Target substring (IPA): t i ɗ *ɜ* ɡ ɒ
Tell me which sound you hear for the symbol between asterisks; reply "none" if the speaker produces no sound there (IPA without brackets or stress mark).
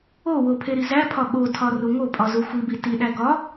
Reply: æ